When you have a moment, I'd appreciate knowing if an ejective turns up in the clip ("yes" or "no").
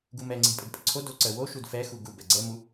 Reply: yes